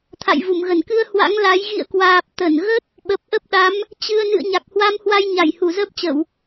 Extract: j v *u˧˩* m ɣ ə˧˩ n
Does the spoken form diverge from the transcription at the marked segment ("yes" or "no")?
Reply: no